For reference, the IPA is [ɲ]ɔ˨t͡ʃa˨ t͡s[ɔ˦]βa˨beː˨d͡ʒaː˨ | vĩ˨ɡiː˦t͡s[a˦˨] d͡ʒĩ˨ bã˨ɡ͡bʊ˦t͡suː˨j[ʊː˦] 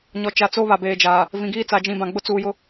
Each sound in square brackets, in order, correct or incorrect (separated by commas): correct, incorrect, incorrect, incorrect